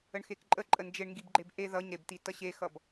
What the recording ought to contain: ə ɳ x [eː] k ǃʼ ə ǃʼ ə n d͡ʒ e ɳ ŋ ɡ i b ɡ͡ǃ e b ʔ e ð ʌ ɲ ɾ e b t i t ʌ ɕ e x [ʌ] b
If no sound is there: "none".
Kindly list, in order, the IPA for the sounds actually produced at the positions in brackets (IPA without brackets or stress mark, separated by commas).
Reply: e, ʌ